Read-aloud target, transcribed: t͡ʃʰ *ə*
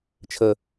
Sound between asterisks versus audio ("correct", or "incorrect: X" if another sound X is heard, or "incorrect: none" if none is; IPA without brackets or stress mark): correct